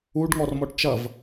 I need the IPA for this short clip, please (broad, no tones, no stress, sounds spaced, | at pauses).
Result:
u ɖ ŋ ɔ r m ɔ ʈ t͡ʃ ɐ v